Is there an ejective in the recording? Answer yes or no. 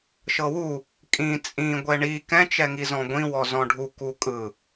yes